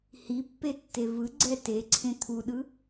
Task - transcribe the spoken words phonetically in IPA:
hipːetːe vɯɡ͡ǀɛ teǀʰẽ t̪ʰuɗɯ

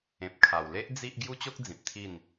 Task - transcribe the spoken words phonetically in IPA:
ẽ˨p̚kʰa˨˩wle˦ʔ d͡zi˦ʔ ɡju˦t͡ɕo˦k̚ d͡zĩ˨p̚t̪ʰi˥˧n

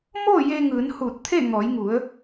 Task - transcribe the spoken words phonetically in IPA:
moː˥˨je˧ŋɯː˩˧n huː˧˩t̚t̪ʰe˥˨ ŋɔː˩˧jŋu˩˧ə̯

